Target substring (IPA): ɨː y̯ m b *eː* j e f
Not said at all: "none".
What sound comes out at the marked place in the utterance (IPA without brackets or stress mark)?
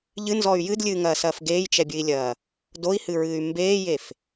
eː